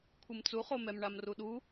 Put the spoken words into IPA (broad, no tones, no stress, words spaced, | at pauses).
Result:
kʷʰɨmt͡suχomɛm ɳamruɗu